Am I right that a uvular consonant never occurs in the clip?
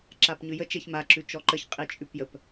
no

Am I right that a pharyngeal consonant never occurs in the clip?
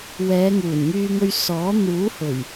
yes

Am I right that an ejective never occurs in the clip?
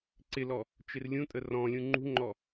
no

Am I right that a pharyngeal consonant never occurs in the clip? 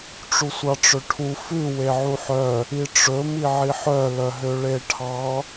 no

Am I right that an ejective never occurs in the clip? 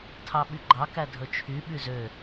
yes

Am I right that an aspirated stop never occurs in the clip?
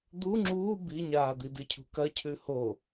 no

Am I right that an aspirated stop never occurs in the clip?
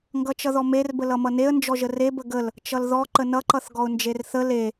yes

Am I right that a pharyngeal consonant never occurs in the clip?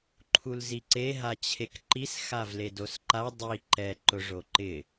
yes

